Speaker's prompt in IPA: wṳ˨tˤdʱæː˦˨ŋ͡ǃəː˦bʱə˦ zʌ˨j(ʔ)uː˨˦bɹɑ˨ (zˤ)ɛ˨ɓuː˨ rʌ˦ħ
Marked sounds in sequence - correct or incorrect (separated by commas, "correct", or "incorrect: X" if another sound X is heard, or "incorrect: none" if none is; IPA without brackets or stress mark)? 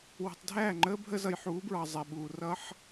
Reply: incorrect: ħ, correct